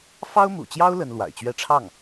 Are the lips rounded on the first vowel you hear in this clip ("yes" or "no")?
no